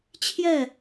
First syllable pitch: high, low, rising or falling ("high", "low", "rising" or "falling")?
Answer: falling